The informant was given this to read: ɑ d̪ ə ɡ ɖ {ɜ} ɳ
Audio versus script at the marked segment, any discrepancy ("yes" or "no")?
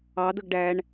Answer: yes